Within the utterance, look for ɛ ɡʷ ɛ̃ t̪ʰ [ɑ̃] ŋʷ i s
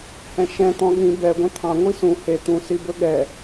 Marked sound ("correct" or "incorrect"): correct